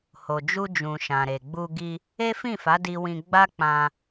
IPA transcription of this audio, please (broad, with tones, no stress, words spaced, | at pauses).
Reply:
ho˨d͡ʒu˧d͡ʒũ˨ ʃã˨ɾe˨ɡ͡bu˧ ɡi˧ | e˦fĩ˦˨fa˨˦ di˦wĩ˦ ɡ͡ba˦ k͡pã˧